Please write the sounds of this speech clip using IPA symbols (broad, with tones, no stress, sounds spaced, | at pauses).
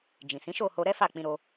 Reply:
d͡ʒ ĩ˨ s ĩ˨˦ ʃ o˦˨ h o˧ ɾ ɛ˦ f a˦˨ k͡p ĩ˧ ɾ o˧